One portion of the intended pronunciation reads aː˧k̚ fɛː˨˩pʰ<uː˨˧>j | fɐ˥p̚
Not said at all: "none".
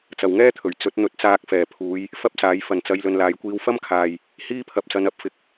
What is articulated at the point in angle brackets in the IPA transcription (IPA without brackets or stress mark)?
uː˨˧